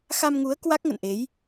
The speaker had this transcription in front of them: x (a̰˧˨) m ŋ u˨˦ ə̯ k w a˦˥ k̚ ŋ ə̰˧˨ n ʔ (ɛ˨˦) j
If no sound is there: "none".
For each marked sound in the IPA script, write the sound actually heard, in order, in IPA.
a˧, e˨˦

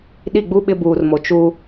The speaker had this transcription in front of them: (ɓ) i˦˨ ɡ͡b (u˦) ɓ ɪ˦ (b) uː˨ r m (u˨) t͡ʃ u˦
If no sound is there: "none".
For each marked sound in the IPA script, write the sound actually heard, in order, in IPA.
ɗ, u˦, b, o˨

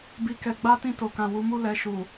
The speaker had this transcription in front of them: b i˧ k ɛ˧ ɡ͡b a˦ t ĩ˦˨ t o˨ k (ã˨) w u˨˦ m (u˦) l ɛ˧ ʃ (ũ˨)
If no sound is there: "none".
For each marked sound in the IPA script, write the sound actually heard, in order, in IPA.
ã˨, u˦, u˨

